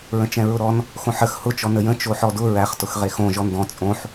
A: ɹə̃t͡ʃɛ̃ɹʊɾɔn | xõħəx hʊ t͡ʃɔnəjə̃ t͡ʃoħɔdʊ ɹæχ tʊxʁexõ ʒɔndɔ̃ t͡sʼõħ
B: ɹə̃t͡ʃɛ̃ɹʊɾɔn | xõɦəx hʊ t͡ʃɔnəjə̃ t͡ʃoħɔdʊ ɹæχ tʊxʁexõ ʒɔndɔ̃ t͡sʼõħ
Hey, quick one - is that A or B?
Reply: A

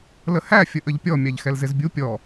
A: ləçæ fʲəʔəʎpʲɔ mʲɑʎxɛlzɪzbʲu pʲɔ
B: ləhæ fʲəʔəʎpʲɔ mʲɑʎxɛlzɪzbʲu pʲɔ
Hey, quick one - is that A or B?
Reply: B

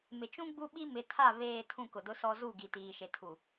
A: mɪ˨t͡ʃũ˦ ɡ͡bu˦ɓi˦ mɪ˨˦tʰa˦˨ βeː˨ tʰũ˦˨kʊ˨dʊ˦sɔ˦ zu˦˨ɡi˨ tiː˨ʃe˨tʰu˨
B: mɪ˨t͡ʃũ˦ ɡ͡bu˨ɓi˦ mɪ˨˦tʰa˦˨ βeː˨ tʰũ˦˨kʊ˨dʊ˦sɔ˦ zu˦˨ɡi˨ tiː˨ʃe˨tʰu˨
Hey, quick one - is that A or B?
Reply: A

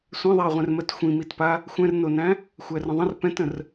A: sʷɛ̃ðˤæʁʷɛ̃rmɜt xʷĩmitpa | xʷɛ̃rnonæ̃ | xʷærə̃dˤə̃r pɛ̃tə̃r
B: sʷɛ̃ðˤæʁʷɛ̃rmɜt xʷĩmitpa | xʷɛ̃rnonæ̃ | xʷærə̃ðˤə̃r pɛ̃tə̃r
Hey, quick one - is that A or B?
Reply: B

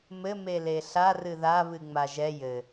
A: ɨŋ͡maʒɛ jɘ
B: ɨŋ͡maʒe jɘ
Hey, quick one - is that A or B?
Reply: A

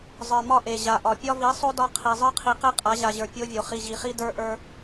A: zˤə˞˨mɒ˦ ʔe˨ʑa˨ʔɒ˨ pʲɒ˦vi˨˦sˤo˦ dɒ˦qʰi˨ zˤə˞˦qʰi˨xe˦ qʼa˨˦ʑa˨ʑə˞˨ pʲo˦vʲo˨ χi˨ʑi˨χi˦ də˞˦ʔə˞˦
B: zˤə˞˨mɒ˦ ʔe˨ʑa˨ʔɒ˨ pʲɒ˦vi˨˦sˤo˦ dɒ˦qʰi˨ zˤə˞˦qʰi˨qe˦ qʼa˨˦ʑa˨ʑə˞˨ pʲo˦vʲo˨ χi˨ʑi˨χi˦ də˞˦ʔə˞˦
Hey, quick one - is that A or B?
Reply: B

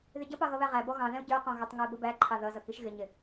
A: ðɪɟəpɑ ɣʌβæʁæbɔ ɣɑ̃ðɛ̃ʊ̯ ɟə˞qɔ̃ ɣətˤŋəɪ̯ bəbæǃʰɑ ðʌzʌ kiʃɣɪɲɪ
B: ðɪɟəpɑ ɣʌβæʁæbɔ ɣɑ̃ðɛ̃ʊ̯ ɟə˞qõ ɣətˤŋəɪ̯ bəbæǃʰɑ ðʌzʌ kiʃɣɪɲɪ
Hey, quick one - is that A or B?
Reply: A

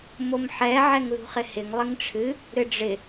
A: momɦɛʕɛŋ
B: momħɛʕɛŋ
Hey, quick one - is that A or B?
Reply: B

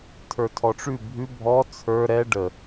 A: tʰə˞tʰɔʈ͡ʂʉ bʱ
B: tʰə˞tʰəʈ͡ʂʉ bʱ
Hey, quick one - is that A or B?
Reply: A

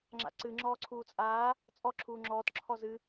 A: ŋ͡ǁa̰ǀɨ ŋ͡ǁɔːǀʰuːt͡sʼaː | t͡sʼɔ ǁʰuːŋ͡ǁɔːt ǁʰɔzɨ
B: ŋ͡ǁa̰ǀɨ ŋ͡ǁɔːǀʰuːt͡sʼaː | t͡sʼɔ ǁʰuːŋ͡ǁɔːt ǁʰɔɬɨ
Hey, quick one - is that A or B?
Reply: A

